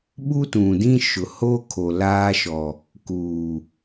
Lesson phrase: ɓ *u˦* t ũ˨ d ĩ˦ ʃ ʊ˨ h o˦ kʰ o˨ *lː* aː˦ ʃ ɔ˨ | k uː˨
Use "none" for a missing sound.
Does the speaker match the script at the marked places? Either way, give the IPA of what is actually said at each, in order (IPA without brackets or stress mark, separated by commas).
u˦, l